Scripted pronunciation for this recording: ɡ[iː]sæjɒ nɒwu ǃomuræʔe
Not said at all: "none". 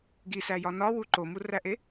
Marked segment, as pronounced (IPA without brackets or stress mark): i